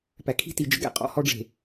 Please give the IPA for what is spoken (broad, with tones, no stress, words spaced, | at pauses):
pæ˨kʰi̤˦ti˨ d͡ʒə̰˦ɡæ̰˦ qʼɔ̰˦hɔ˦ɖ͡ʐe̤˨